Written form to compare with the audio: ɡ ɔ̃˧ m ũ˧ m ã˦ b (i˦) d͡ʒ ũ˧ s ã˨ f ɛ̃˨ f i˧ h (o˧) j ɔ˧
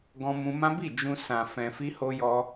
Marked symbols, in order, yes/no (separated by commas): no, yes